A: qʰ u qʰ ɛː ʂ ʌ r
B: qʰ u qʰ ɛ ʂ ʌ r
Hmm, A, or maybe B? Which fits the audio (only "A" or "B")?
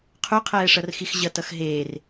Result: A